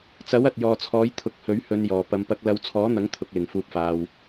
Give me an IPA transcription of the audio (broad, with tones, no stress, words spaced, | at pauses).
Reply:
t͡sɐ˨˥w ɐ˨t̚jɔː˨t͡sʰɔː˨˥j t̪ʰʊ˨˥k̚hɵ˨˥ɥhɵ˨˧njɔː˨˩ pɐ˨˧mpɐ˧k̚ lɐ˨˧wt͡sʰɔː˨˥n̪ɐ˨˥ŋ t̪ʰʊ˧k̚lɪ˨ŋfuː˧p̚faː˧w